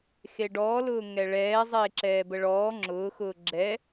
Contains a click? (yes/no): yes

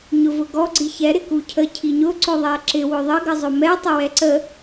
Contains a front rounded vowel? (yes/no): no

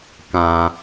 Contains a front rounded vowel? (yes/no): no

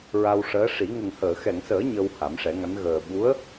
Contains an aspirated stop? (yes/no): no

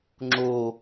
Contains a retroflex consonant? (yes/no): no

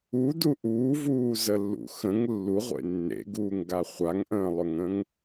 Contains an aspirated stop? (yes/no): no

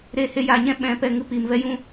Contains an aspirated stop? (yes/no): no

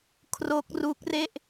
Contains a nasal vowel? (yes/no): no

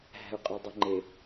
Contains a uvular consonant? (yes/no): yes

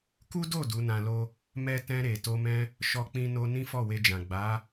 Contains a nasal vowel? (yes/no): yes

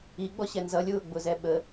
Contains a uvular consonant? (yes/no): no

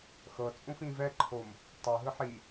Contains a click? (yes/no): yes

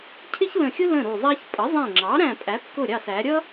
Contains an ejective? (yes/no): yes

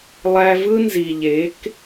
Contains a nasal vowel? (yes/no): no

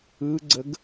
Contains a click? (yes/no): yes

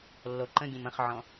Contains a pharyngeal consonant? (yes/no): yes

